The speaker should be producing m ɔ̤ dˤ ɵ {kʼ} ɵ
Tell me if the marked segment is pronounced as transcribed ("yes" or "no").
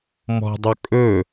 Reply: yes